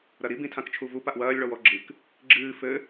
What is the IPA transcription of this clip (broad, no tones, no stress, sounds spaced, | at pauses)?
ɾ ɐ ɾ i b ĩ tʰ ã k t͡ʃʰ u v u p a ʔ w ɐː lʲ ɭ ɔ w ɔ ɡ͡ǁ ɨ k | ɡ͡ǁ ɨː f ɘ